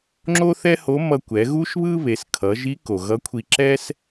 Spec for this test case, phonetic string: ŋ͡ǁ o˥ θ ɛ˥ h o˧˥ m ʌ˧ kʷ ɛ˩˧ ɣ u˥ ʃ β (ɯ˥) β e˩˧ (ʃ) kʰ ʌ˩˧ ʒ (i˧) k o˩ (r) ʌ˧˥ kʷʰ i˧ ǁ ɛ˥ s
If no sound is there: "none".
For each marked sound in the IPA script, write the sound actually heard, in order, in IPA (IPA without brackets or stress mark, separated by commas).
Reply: ɯ˥, s, i˧˥, ɣ